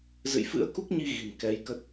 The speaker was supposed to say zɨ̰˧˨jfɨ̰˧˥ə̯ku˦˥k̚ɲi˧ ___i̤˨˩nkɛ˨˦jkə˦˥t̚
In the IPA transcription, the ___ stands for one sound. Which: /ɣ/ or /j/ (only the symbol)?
ɣ